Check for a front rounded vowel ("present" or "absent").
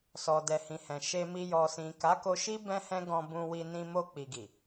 absent